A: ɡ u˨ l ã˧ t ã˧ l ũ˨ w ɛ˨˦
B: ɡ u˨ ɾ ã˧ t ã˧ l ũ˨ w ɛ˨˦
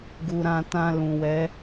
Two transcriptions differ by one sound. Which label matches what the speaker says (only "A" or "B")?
B